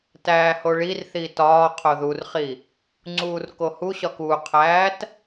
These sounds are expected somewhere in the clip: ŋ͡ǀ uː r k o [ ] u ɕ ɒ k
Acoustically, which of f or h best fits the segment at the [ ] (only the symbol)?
h